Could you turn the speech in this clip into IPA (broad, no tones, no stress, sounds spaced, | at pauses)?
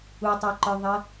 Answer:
u tˤ ə˞ ǃ ə˞ ðˤ ɜ